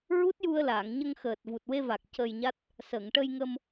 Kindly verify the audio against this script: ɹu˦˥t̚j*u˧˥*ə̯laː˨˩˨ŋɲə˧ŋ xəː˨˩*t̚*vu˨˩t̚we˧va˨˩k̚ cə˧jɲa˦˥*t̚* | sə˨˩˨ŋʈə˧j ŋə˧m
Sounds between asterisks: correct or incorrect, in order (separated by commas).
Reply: incorrect, correct, correct